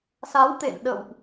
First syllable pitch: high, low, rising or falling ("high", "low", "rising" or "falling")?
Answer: rising